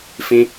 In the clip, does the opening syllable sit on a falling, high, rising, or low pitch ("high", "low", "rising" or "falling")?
high